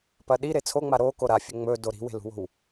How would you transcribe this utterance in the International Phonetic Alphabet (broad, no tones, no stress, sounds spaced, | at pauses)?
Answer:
p ɐ ɗ i ɾ e t͡sʰ o ŋ͡m a ɾ o k o ɾ a fʲ ɵ ŋ͡m ɵ d o ɾ i̤ w e̤ l ṳ w o̤ w